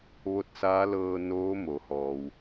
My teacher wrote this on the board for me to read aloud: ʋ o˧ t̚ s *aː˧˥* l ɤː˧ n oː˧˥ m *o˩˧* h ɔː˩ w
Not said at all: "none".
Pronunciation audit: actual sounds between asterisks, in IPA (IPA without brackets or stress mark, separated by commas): aː˧˥, o˩˧